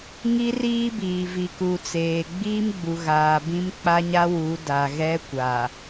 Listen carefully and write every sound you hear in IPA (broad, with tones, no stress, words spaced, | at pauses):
ŋi˦riː˦biː˨ vi˨ku˨t͡seː˨ ɡ͡biː˦mɡ͡bu˨ɣaː˨ bĩ˦mk͡pa˦ɲa˦ wu˨˦ da˨ɣɛ˦kʷa˨